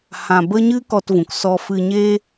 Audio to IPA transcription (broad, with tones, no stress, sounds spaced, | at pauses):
h ã˧ b ə˦ ɲ ɨ˦ k ɔ˧ t v ũ˨ k s ɔ˧ f ɨ˧ ɲ eː˦